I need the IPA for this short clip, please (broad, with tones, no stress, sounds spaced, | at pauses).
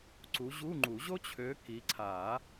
ǀ u˨˦ ʑ u˧˥˧ ŋ͡ǃ u˨˩˦ ʑ o˥ t͡ɕʰ ø˨˦ k i˨˦ ǀʰ a˨˩˦